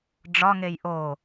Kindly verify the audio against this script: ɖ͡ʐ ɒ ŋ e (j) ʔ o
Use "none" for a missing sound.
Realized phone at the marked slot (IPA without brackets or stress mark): j